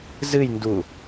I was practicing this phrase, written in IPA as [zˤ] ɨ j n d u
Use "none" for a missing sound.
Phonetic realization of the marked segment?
z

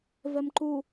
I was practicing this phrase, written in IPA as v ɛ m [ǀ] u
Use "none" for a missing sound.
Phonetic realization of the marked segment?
ǃ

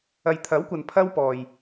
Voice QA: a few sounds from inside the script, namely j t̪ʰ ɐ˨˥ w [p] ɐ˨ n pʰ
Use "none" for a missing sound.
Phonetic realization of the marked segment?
kʷ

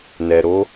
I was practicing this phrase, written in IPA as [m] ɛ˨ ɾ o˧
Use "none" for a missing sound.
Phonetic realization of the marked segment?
n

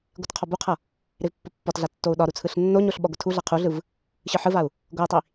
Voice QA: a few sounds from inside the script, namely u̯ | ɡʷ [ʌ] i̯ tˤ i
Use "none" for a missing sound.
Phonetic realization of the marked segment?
ʌ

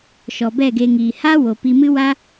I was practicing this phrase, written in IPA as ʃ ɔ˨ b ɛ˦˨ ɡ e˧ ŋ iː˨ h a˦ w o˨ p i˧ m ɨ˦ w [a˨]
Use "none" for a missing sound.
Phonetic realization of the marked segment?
a˦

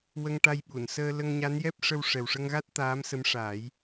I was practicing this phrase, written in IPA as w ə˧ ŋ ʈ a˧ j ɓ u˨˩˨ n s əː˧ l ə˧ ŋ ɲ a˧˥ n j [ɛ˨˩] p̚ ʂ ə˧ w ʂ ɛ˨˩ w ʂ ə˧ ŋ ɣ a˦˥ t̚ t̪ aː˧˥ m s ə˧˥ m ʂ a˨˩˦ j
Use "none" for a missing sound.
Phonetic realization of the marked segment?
ɛ˦˥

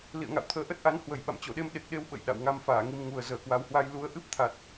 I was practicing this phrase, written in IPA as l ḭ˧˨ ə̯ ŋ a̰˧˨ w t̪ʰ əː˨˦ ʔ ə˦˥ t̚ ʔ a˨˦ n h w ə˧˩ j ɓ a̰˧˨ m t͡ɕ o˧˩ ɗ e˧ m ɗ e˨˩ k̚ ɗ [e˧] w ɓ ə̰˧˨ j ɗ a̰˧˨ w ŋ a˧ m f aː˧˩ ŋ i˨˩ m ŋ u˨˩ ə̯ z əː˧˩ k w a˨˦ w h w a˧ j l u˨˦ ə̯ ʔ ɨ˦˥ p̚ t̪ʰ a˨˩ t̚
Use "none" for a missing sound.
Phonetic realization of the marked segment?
e˧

